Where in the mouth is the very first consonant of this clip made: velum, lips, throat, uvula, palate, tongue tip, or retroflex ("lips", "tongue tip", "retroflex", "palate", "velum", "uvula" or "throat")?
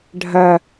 retroflex